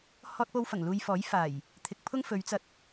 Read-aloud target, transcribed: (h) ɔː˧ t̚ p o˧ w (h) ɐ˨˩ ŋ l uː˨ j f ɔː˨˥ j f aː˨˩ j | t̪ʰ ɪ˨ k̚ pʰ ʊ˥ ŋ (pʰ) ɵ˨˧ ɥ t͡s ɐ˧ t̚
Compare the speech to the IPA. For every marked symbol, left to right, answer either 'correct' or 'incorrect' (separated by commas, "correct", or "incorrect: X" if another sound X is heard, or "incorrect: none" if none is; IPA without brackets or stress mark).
correct, incorrect: f, incorrect: f